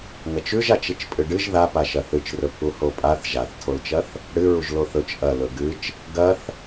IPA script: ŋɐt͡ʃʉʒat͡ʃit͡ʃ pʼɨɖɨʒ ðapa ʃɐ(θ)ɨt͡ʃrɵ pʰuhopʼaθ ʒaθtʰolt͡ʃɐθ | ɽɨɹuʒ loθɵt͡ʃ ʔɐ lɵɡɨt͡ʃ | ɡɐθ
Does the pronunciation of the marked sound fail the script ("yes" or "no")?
no